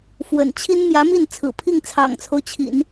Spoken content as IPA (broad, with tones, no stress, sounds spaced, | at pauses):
f w ə̰˨˩ n t͡ɕʰ i˥ n m j ä˧˥ m i˥˩ n t͡sʰ ɹ̩˨˩ pʰ i˥˩ ŋ t͡sʰ ɑ̰˨˩ ŋ t͡sʰ o˦ ʊ̯ t͡ɕʰ ḭ˨˩˦ n